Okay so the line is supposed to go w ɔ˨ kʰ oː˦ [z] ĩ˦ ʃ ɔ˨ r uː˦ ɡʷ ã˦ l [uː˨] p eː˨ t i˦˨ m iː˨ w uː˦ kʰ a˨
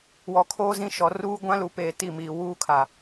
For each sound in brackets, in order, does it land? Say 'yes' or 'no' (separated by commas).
yes, no